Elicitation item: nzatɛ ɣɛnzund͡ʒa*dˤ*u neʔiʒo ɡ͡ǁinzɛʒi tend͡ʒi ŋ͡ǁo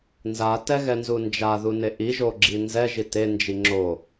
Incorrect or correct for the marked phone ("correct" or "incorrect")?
incorrect